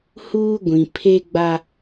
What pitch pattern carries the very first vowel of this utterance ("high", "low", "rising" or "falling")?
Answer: high